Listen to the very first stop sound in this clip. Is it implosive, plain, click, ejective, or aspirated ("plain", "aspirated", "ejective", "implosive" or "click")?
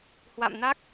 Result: plain